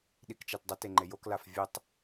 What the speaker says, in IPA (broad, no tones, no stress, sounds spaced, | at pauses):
ɗ i k t͡ʃ a t dˤ ɐ t e ŋ͡ǃ e j o k l a f vʲ ɵ tˤ